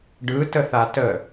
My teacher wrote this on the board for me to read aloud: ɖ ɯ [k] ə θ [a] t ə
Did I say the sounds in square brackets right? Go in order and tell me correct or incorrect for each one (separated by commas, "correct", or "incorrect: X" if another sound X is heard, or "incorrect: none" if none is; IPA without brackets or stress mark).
incorrect: t, correct